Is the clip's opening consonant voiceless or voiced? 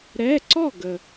voiced